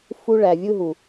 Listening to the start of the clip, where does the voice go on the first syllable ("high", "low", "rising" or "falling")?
high